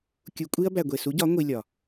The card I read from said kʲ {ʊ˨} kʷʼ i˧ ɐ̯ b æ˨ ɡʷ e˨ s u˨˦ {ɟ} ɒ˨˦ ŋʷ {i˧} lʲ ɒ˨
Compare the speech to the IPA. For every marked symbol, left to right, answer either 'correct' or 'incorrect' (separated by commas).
incorrect, correct, correct